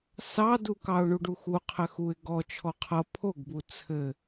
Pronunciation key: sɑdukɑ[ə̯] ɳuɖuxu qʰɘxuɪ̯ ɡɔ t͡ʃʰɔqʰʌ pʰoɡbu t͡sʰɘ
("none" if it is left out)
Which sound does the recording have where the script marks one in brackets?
ʊ̯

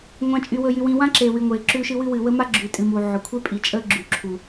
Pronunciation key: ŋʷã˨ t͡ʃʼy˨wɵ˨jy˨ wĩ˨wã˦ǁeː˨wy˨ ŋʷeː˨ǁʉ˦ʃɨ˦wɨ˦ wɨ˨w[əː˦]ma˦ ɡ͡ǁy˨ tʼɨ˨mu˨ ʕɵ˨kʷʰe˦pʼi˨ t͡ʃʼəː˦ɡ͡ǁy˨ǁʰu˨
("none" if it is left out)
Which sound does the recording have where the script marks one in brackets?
ə˦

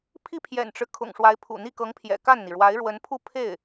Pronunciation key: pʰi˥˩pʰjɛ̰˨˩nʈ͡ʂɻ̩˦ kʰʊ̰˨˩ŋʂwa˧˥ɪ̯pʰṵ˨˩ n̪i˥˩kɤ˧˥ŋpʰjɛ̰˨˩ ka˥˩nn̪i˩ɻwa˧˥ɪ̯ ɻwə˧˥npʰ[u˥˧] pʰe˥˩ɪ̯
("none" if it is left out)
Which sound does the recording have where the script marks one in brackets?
u˥˧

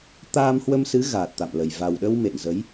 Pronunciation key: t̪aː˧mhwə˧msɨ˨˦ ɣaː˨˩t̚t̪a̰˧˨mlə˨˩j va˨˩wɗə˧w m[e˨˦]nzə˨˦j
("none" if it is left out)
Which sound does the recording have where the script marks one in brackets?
ḛ˧˨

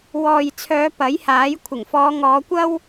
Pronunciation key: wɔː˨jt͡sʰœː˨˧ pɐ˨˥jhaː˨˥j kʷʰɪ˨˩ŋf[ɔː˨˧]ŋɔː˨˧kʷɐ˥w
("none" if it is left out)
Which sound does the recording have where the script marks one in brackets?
ɔː˨˧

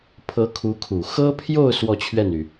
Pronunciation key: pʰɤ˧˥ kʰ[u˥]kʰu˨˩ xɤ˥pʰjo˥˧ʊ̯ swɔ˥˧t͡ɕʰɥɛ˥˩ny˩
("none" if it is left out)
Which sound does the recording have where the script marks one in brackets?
u˧˥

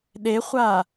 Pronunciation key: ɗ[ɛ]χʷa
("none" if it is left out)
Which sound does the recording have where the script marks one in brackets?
e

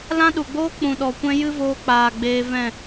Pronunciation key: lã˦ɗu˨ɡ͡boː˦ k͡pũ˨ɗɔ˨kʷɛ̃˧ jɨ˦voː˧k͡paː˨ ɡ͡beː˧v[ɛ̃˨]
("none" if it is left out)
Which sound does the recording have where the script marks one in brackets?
ɛ̃˦˨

